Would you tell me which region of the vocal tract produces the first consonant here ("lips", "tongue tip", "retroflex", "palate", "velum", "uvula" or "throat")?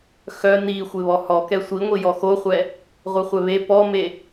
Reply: velum